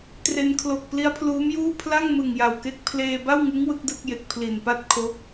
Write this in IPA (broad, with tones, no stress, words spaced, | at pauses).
tre˧n kʰlo˨˩k̚ pli˦˥a̯pʰluː˦˥mjuː˥˩ pʰla˥˩ŋmɯ˨˩ŋ ja˨˩wke˦˥k̚ pʰleː˧ba˥˩wŋɯ˦˥ŋ wɯ˦˥k̚dɯ˥˩k̚je˨˩k̚ pʰli˨˩npa˥˩t̚kʰo˦˥k̚